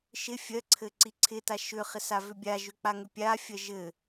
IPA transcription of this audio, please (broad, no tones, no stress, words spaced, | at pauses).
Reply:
ʃɪ fʲɜǀʰɘ ǀiǀʰɪta ʃʏχɪ savʏbʲaʒʏ k͡paŋʏpʲafʲɜ ʒɘ